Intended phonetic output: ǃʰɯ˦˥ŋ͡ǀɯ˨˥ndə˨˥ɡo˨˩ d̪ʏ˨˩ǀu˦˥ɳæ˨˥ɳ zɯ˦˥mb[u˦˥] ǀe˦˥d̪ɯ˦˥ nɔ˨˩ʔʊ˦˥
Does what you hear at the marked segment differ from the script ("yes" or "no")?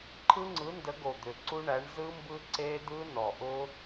yes